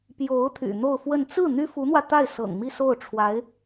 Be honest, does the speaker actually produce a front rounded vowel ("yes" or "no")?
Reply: yes